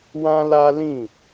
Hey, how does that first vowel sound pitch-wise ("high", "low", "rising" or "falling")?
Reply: high